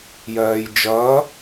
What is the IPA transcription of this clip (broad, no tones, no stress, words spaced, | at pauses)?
jɜːjd͡ʒʌː